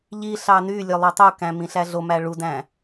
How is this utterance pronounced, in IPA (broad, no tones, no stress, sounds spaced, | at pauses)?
ʎ i ɬ ɑ n y lʲ ø lˠ ø tˤ u k æ̃ m ĩ ɬ æ ɮ o m æ ɭ u d æ̃